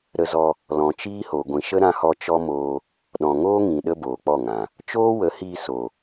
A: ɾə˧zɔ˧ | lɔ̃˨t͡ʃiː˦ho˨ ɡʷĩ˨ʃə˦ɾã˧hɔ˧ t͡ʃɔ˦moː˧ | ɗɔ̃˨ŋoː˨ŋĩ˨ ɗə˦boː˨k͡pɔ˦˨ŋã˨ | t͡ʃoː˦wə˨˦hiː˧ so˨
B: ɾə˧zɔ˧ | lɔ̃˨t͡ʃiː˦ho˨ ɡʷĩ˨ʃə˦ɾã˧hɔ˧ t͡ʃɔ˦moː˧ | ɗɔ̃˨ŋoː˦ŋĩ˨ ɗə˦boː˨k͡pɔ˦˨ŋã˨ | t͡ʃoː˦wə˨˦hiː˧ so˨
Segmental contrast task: B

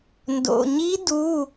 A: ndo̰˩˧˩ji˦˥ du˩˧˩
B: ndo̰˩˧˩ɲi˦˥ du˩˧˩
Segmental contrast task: B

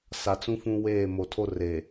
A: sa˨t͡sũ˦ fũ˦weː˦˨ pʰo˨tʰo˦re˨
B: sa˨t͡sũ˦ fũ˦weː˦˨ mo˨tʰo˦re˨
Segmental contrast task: B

